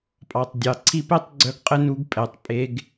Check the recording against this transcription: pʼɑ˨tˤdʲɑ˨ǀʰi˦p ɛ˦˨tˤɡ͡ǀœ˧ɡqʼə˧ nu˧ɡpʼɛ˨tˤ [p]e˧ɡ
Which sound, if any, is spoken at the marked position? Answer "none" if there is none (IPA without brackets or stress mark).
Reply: pʼ